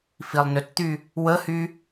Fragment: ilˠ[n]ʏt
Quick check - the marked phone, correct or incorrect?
correct